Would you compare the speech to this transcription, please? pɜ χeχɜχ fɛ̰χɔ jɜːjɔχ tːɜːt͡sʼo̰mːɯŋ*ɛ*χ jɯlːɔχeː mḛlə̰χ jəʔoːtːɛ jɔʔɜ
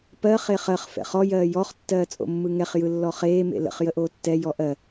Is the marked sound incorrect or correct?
correct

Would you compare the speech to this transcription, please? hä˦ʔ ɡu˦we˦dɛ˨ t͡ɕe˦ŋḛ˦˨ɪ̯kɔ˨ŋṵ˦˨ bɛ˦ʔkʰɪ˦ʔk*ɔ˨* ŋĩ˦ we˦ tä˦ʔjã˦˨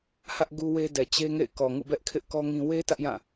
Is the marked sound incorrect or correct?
incorrect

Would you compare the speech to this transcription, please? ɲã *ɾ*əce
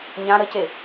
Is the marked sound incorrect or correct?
correct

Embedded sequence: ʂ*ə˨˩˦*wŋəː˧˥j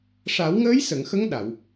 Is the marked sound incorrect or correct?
incorrect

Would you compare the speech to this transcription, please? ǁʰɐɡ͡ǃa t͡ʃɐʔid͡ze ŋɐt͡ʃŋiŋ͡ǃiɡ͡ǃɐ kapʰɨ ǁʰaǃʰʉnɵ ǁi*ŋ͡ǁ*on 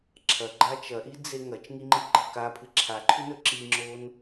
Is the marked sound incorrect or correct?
correct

